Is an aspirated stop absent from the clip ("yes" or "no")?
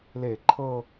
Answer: no